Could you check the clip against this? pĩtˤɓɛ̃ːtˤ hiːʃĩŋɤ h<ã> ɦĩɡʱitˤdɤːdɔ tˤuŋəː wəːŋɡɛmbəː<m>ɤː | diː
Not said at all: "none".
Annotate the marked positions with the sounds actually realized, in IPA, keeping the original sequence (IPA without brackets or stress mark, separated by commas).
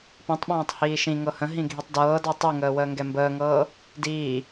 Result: ə̃, ŋ